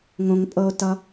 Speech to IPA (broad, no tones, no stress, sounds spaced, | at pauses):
ŋ õ ŋ pʼ ɤ o̯ t ʌ